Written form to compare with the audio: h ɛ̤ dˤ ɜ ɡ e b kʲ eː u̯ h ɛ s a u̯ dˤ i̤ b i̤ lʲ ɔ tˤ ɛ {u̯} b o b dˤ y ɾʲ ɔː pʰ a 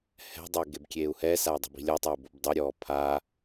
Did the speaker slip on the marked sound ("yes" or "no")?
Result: no